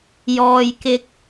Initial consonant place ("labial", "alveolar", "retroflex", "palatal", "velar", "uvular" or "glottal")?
palatal